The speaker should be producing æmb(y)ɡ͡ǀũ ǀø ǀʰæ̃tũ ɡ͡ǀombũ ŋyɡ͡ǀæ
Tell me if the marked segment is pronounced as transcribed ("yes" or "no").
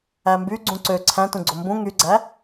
yes